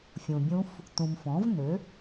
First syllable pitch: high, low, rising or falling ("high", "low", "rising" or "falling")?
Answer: low